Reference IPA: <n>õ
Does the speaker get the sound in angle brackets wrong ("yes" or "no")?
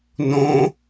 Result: no